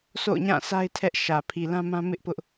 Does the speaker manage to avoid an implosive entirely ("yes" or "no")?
yes